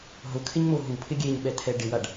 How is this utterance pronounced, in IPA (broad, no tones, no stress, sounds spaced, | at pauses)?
ɦ ʊ kʰ ɪ ɲ m o ɦ u pʰ ɪ ɡʲ e ɲ ɓ ɛ t̪ʰ ɛ ɖ ɪ w a ɖ